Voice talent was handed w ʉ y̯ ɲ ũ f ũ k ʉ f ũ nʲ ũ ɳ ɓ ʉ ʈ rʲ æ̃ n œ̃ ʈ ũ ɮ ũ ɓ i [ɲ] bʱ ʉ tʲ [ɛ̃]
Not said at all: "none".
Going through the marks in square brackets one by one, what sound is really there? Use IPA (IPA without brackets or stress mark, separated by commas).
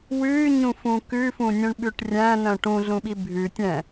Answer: none, ɛ̃